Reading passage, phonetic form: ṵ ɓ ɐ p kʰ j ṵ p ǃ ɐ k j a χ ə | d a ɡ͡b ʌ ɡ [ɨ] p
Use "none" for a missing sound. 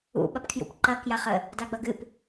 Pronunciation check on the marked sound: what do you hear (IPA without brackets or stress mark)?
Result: ɨ